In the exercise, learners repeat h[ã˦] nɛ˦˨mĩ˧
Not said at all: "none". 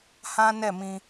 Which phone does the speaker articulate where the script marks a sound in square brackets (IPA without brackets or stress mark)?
ã˦